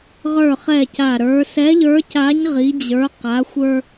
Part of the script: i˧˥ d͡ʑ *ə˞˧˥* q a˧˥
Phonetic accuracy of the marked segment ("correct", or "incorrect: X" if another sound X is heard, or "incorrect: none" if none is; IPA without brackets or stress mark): correct